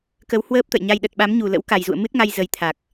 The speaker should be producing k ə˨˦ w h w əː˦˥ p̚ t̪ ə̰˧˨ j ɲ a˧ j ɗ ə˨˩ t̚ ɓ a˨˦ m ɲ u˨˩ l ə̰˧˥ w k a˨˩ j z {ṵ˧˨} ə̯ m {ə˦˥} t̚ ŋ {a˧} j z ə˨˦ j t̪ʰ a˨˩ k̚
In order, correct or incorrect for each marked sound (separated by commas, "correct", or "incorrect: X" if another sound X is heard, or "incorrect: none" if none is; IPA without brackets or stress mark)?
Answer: correct, incorrect: ɨ˦˥, correct